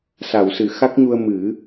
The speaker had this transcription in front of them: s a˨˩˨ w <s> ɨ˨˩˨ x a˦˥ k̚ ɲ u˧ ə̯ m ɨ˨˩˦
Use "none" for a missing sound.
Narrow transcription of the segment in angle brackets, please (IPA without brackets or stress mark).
s